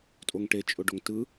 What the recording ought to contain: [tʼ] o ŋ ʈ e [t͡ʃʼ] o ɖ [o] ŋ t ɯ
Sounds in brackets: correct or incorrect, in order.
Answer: correct, correct, correct

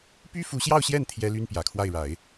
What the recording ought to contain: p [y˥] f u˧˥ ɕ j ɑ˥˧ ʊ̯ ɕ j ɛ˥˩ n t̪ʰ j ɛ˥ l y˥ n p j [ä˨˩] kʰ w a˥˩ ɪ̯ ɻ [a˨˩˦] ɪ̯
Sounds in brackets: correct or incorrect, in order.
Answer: correct, correct, correct

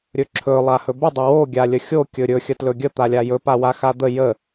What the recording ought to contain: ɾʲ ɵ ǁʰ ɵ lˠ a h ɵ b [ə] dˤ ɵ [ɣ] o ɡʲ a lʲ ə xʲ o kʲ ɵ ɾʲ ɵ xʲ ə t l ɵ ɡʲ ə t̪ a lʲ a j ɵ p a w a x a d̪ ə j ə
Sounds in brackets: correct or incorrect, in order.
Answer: correct, incorrect: w

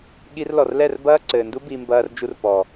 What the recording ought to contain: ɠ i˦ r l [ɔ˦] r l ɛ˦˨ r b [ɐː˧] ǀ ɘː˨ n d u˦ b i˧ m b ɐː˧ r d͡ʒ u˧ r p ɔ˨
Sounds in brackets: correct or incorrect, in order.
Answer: incorrect: ɔ˨, incorrect: ɐː˦

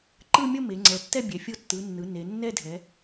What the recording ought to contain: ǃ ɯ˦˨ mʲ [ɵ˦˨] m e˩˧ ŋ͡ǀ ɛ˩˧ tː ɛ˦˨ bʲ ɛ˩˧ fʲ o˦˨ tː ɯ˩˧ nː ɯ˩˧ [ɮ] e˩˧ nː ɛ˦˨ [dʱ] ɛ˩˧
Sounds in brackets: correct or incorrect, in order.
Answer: incorrect: o˦˨, incorrect: n, correct

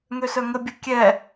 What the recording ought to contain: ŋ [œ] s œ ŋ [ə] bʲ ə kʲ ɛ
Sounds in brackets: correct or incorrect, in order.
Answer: incorrect: ø, correct

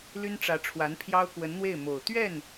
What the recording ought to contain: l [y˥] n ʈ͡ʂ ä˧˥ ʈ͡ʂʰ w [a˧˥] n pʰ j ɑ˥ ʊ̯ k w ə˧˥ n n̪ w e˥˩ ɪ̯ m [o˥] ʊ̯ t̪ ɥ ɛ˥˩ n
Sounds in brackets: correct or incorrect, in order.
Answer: correct, correct, incorrect: o˨˩

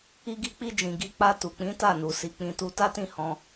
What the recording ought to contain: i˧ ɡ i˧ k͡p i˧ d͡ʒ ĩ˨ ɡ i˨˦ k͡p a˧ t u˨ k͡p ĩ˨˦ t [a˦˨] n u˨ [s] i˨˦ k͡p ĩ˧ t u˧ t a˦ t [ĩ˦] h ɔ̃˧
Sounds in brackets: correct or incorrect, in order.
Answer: correct, correct, incorrect: ĩ˦˨

